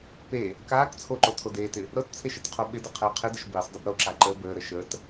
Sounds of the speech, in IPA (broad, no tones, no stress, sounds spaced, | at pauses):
p e | k aː k t͡sʰ o ǃ o tʰ o d eː t ɪ | ɾ ɤ t t͡sʰ e ʃ ə t qʰ o ɓ ɪ d ə qʰ əː qʰ ɪ d ə ʃ b i sˤ dˤ ɪ b ɾ o ǁ a ǃ əː b əː ɾ ə ʃ ə t